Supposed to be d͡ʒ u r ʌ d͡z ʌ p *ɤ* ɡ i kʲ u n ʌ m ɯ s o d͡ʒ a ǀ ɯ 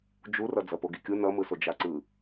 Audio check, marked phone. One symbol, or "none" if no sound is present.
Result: o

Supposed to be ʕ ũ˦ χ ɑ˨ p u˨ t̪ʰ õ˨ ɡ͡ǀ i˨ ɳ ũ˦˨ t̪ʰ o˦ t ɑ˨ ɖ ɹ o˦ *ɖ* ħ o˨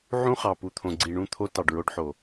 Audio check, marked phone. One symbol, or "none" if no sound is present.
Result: ɖ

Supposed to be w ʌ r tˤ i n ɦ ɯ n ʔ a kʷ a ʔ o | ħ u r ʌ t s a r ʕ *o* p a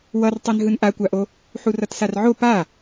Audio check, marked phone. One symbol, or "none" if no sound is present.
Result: o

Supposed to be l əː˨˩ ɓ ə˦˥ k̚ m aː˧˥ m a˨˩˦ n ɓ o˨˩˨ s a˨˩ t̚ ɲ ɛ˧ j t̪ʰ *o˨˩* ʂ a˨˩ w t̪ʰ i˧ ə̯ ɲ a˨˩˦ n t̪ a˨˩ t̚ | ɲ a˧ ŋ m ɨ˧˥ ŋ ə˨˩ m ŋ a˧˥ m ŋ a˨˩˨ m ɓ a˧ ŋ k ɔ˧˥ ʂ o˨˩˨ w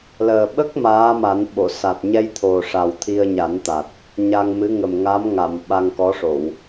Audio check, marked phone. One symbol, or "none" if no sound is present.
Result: o˨˩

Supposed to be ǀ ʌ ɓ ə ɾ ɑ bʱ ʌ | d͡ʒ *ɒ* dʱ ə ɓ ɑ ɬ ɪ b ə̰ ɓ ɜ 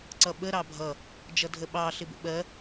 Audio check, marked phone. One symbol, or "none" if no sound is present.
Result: ʌ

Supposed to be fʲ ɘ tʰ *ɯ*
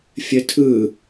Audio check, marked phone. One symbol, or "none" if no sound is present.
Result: ɯ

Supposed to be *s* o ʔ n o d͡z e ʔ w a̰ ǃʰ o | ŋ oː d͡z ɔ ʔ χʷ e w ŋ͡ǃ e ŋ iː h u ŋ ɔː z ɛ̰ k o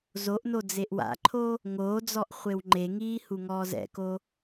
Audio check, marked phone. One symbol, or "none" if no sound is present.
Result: z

